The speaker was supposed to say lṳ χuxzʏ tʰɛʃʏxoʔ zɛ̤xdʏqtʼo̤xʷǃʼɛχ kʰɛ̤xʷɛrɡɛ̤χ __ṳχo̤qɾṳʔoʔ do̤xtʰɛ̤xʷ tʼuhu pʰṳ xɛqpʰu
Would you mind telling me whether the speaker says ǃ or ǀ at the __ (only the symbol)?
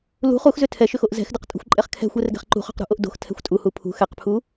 ǃ